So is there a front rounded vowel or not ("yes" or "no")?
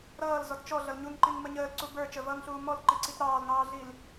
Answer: no